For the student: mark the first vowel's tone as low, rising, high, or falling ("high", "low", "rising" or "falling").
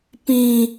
high